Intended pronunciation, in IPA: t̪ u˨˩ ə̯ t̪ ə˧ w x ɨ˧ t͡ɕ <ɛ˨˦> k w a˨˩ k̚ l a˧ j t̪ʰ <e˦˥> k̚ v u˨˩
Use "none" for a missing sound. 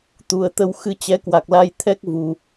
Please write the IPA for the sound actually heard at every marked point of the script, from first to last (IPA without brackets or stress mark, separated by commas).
ɛ˨˦, ɛ˦˥